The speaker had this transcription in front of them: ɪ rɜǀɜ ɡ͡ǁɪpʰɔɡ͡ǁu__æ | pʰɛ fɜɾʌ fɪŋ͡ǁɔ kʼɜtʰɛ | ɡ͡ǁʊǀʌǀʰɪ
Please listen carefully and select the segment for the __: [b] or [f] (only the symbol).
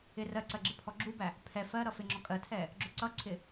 b